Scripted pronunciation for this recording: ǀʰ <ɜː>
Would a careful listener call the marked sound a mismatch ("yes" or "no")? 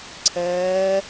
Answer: no